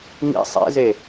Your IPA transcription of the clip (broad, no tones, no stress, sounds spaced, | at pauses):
ŋ ḭ sˤ ḛ z e